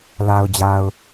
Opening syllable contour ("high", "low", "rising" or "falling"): low